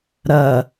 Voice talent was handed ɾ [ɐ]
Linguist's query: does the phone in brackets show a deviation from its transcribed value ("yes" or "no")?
no